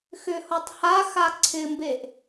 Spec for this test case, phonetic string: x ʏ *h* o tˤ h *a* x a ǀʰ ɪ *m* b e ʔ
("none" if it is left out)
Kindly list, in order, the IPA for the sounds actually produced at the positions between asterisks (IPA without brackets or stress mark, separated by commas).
h, a, m